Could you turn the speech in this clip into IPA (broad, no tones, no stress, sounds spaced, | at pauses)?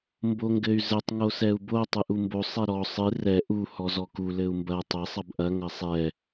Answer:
m b o ŋ ɡ ɘ y̯ z ɘ tˤ ŋ o s ɛ u̯ b o tˤ ɨ ʔ u m b o sˤ ɛ ɾ ɔ sˤ ɨ r ɛ ʔ u h ɔ z ɔ k u l ɘ u̯ m b ɐ tˤ ɘ sˤ ɐ b ʔ ɐ ŋ ɐ sˤ ɛ